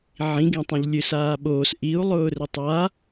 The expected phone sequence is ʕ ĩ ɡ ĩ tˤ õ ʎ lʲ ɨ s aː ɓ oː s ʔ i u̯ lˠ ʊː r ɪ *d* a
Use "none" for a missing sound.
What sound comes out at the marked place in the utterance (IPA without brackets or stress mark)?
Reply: tˤ